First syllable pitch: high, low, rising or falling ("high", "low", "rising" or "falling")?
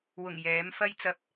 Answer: low